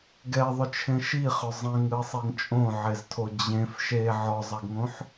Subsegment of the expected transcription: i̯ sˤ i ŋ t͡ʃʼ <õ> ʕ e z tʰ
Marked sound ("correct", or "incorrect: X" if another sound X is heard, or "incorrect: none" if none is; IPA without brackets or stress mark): correct